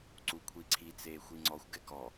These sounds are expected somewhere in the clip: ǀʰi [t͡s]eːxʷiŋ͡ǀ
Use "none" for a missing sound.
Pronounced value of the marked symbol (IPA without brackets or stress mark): t͡s